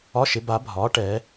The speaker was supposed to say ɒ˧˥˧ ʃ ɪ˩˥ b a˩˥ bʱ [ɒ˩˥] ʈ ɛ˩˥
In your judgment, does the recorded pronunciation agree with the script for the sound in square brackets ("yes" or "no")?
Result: no